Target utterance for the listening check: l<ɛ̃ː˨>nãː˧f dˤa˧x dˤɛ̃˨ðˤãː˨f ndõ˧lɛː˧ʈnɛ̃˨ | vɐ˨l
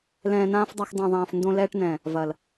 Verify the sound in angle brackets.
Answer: correct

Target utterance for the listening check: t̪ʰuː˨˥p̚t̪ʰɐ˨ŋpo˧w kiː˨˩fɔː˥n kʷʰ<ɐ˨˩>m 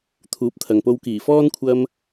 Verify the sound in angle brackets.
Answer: incorrect: ɐ˧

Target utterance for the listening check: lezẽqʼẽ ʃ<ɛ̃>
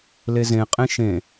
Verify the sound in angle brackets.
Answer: incorrect: ẽ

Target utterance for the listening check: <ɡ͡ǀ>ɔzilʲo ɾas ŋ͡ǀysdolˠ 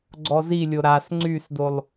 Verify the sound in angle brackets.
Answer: correct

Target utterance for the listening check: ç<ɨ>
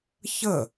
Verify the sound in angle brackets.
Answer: incorrect: ə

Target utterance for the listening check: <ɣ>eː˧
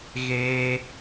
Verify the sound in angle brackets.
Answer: correct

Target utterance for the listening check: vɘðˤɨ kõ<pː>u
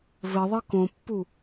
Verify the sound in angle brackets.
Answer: correct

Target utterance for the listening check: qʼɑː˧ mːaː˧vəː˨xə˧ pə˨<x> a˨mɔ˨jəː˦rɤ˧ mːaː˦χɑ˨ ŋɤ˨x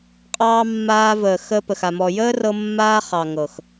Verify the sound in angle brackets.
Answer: correct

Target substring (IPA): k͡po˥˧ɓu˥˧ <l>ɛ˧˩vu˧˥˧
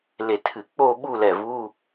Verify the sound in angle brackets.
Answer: correct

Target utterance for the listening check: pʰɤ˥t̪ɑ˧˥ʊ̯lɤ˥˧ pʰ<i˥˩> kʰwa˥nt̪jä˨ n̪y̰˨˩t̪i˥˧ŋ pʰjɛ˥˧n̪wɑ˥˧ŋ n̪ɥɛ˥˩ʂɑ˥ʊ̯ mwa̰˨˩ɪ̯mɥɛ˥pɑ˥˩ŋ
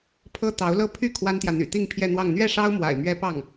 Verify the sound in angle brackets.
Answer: incorrect: y˥˩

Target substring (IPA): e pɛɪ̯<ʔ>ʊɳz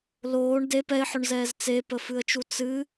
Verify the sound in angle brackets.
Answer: incorrect: ħ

